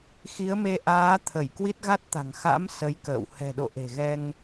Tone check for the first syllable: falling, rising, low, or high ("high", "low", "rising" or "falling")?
rising